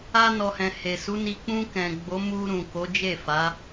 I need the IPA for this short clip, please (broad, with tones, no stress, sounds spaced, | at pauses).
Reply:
a˧ n ɔ˨ h ɛ̃˨ h e˨ s u˨˦ n i˧ k͡p ũ˧ k ɛ̃˨ ɡ͡b o˨˦ m u˧ ɾ ũ˨ k o˨˦ d͡ʒ e˦˨ f a˨˦